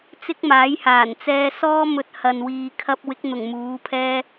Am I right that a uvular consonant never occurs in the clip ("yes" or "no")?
yes